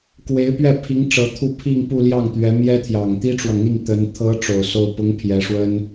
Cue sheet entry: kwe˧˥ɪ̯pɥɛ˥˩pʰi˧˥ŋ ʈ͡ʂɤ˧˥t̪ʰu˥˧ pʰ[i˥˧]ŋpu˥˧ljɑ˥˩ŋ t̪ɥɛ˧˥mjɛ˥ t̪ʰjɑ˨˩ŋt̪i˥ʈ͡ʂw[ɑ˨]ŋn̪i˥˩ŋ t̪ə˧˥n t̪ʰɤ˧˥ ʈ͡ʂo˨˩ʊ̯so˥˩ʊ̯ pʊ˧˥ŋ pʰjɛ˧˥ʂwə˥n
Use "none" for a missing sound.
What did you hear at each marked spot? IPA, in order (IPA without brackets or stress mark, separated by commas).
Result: i˥˧, ɑ˨